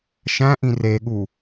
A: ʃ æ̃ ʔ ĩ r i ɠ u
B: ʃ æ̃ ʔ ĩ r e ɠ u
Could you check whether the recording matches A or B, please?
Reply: B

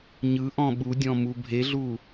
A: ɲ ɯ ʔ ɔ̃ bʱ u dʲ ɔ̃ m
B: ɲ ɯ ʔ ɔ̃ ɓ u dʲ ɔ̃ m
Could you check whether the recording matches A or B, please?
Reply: B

